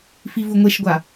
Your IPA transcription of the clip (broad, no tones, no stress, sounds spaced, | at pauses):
f i v u ŋʷ e ʃ ɡʷ a